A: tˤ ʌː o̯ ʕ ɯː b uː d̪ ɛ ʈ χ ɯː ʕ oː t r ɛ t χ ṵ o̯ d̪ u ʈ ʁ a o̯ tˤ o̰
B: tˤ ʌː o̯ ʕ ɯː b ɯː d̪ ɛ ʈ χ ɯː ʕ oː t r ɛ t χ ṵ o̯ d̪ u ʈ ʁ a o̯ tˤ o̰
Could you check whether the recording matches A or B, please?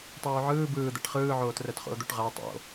B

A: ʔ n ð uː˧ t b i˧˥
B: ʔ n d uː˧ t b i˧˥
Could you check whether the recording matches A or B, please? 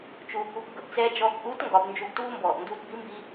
B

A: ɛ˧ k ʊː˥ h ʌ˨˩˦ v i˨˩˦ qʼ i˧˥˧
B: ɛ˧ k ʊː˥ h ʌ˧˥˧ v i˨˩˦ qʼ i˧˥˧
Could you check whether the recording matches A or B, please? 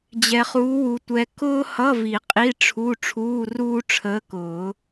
B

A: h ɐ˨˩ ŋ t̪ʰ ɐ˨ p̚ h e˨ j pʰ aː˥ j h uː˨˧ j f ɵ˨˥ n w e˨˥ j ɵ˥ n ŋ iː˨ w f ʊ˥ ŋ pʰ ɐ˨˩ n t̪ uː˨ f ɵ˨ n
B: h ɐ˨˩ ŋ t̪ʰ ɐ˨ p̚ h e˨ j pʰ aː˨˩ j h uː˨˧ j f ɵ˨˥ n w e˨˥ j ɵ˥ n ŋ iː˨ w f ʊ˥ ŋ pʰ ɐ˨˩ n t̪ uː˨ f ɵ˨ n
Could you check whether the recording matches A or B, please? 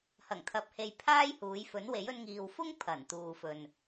A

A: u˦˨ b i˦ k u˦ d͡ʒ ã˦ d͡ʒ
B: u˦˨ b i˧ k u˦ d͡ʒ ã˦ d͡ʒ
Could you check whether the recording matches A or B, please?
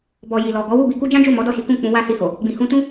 B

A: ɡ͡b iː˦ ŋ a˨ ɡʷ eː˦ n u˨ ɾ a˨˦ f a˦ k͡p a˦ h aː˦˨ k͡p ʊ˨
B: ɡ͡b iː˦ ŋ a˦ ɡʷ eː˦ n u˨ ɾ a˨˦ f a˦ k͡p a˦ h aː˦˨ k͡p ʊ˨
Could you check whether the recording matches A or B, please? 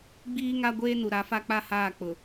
B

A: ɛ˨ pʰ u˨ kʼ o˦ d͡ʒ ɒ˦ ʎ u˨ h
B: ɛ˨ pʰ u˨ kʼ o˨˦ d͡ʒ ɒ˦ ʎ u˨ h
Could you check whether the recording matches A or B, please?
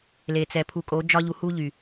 B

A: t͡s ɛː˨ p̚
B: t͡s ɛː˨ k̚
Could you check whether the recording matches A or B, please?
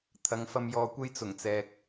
B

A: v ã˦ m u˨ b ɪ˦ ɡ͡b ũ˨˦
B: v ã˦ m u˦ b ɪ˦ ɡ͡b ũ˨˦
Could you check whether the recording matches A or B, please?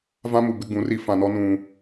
A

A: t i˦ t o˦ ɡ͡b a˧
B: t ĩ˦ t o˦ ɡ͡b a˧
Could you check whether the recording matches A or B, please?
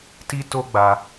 A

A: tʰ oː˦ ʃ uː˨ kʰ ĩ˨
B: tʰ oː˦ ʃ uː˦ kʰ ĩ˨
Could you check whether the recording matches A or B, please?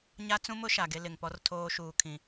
A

